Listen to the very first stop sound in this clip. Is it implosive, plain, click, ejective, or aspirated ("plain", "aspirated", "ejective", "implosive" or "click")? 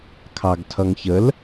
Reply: aspirated